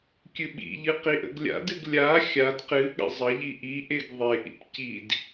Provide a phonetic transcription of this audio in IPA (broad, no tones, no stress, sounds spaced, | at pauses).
kʲ ɨ ɓ ḭ ʎ ɨ q i ʔ ə̰ ɡ lʲ a̰ d ɨ ɡ lʲ a xʲ a d q ɨ ɠ ə̰ zˤ ə ʎ i ʔ i ʔ e ɡ ðˤ e ʔ ḭ p c i d